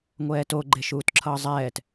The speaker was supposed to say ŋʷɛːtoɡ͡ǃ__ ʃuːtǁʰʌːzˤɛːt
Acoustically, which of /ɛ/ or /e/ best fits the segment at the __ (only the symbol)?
e